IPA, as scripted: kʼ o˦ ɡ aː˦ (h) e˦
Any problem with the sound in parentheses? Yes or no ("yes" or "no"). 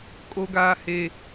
no